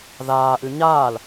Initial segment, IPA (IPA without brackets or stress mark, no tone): ð